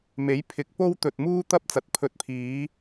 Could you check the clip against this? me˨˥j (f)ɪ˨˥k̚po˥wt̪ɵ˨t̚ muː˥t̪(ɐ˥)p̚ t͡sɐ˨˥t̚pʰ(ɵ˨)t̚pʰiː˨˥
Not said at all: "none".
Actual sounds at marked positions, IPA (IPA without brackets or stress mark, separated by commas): pʰ, ɐ˥, ɵ˧